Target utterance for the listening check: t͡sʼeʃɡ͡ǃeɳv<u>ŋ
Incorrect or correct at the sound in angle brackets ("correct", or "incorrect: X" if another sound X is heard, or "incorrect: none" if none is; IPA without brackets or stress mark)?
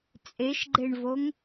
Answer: incorrect: o